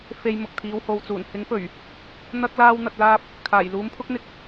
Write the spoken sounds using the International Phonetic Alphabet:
fe˨j mʊ˨k̚t̪ʰiː˨˧who˨wt͡suː˨˩n hɪ˨˥ŋfɵ˨˩ɥ | n̪ɐ˧k̚laː˧wn̪ɐ˨t̚laː˧p̚ | kʰaː˨˩jluː˨˥mpʰʊ˥k̚n̪ɪ˧k̚

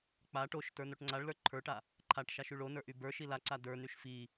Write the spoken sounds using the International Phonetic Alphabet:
k͡pa ʈoʃ tə˞noʈŋ͡ǀaɭlə˞ ǃʰə˞ʈa | ǃʰaʈʃaʃ yɭonə˞ ʔybə˞ʃi laǀa də˞nyʃ fi

